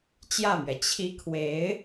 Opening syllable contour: falling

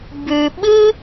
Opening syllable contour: high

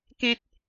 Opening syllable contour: low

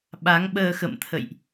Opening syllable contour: rising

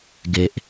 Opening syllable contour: low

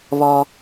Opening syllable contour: low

